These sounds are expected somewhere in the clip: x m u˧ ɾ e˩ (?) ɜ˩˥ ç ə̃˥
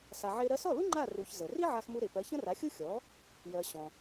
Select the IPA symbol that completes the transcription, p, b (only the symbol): p